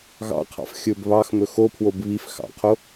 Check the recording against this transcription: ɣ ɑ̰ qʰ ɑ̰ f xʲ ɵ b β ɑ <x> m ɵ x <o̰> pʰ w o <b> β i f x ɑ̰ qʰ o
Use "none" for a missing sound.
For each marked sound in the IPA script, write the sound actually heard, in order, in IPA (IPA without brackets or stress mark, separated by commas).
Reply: x, o, b